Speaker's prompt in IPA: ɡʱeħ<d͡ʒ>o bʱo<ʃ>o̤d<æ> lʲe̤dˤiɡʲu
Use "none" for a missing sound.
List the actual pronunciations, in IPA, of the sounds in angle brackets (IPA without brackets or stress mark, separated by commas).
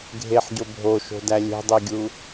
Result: ɟ, ʃ, æ